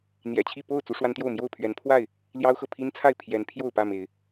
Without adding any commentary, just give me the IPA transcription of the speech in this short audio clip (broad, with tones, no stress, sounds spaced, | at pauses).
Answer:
n̪ j ɛ̰˨˩ t͡ɕʰ i˥˨ p o˥˨ ʊ̯ t͡s u˦ ʂ w a˦ n t̪ j o˥˨ ʊ̯ m j o˥˨ ʊ̯ pʰ ɥ ɛ˨˦ n pʰ w a˥˨ ɪ̯ | l j ɑ˦ ʊ̯ x ɤ˨ pʰ i˦ n t͡sʰ a˥˨ ɪ̯ pʰ j ɛ˨˦ n pʰ j o˥˨ ʊ̯ p ä˥˨ m e˨˦ ɪ̯